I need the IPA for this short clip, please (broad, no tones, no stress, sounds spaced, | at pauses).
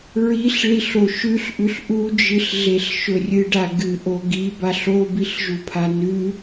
ɹ i ɬ ɭ i ɬ o ʃ ʉ ɬ ʔ ʉ ɬ ʔ u d͡ʒ ɨ ɬ ɮ e ɬ ʃ ɵ rʲ ɨ ɖ a ɡ ɨ ʔ o ɡ i b a ɬ o b i ɬ ʒ u pʰ a n ʉ